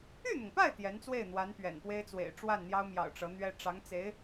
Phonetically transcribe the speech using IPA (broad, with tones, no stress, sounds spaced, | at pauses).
y˥˩ n̪ ʊ˩ ŋ p a˥˩ ɪ̯ t̪ j ɛ˧˥ n t͡s w e˥˩ ɪ̯ n̪ w a˧˥ n p ɥ ɛ̰˨˩ n p w e˥ ɪ̯ t͡s w ḛ˨˩ ɪ̯ ʈ͡ʂ w a˥˩ n n̪ j ɑ˥ ʊ̯ m j ɑ̰˨˩ ʊ̯ ʈ͡ʂ ɤ˧˥ n̪ ɥ ɛ˥ ʈ͡ʂ ɑ˧˥ ŋ t͡s e˧˥ ɪ̯